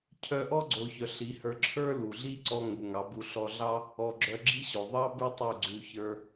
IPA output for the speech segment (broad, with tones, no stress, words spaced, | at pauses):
cʰœ˧ʔɔ˦ɡ͡ǀo˨ çœ˨ɬi˨˦hə˞˧ ǁʰə˞˦lu˨ɮi˦ ǀɔ˧ ŋu˨ŋɑ˨˦bu˧ ɬɔ˧ɮɑ˦ | ɔ˨ ɡ͡ǁœ˧ɡ͡ǁi˦ɕo˨ ðˤɑ˦ bʉ˦tˤu˦˨ ɡ͡ǀʉ˧ çə˞˦